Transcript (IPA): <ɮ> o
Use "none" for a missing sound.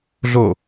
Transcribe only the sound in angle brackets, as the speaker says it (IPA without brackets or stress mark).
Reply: ɮ